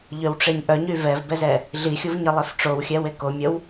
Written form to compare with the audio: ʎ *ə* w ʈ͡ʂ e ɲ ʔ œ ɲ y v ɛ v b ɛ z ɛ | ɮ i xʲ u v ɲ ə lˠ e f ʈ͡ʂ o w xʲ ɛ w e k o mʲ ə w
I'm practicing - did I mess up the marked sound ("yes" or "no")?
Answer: yes